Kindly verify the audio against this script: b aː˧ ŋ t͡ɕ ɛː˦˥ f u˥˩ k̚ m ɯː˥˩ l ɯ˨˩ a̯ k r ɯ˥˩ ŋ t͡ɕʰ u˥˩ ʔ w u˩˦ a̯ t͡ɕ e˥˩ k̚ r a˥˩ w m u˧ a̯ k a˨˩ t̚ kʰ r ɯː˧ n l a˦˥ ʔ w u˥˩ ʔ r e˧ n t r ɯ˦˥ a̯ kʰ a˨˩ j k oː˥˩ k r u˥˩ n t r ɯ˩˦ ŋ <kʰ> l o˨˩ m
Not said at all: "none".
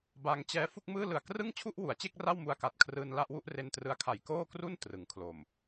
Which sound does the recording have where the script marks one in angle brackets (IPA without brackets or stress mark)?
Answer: kʰ